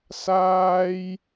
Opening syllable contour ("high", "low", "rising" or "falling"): high